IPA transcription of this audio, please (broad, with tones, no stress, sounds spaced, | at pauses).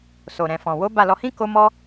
s o˨ ɾ ɛ̃˨ f ɔ̃˨ w o˨˦ b a˦˨ l ɔ˧ h ĩ˦ k o˦ m ɔ˦